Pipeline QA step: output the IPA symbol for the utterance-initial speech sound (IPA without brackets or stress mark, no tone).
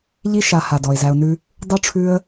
ʎ